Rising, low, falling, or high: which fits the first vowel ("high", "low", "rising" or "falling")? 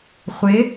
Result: rising